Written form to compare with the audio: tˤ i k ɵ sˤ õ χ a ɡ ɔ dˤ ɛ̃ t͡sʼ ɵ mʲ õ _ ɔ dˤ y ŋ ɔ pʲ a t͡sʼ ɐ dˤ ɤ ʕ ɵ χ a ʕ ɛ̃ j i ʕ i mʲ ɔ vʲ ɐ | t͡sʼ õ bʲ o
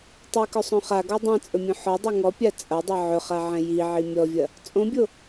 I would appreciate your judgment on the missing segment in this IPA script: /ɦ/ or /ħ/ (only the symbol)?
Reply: ħ